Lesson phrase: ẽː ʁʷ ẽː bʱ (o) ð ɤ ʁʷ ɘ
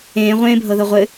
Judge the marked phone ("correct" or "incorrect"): incorrect